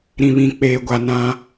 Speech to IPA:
ɾĩ˨βĩ˨k͡peː˨ɡʷa˨ nã˦

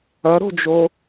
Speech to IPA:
ɐɾo̤d͡ʒo

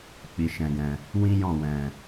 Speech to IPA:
k͡pi˨ʃɛ̃˨ɡɛ̃˨ | wĩ˦jɔ̃˦˨ wɛ̃˨

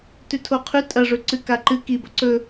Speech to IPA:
tʉtʰoqʰʉ tʼɐʐɵǀɨ kaǃɨ kibɐ ǀɵ

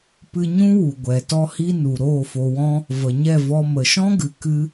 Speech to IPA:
pɨ˧ ɲũ˦wu˨ɡʷɛ˨ tɔ˧hi˧ nu˨ɾoː˦˨fo˧wɔ̃˦ | və˨ɲɛ˦˨vɔ˧ mə˨ʃɔ̃˦ɡɨ˨ kɨ˦

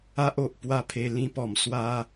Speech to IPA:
a˦ʔo˨ʔ pwa˦pʰe˧ lĩ˧pɔ˨˩m swa˧

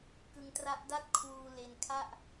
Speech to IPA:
kɯ˧ŋ tra˦˥ʔda˥˩t̚ kʰwuː˧ le˧nkʰa˥˩ʔ

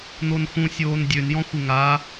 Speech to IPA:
n̪onxũ sʲoːndʲøn jɔ̃xʷɪŋa

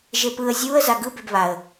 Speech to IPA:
ʒepɯə̯ zʲuə̯ zaɡɯ bebβaə̯

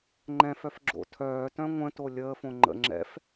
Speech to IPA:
ŋ͡ǃɛ̃fœf ɡ͡ǁo̰tʰœːtœ̃ ŋʷə̃to lʲəːfõ ŋ͡ǃə̰ ŋ͡ǁɛ̰f

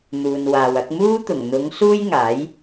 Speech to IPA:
n̪uː˨nwaː˨wɐ˨˥k̚ muː˥t̪ʊ˨˩ŋ n̪ʊ˨˧ŋ suː˥jŋaː˨˥j

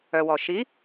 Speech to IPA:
œ˩wɔ˩ ʃi˨˦

